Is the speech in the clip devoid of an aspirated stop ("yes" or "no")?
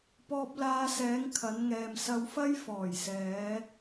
no